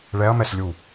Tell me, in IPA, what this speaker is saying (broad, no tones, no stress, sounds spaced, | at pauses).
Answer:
ɭ ɛ ɐ̯ m ɛ s lʲ u